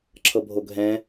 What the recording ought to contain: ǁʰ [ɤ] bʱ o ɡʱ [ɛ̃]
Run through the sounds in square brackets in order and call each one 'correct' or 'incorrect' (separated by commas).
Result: correct, correct